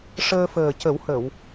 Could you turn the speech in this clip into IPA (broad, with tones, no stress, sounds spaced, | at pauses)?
ʂ əː˧ f əː˨˩ c ə˨˩˦ w h ə˨˩˨ w